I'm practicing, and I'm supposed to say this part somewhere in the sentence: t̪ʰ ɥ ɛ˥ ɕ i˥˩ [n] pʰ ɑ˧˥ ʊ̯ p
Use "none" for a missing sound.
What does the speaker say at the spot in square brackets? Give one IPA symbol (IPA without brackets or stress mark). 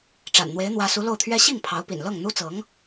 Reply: ŋ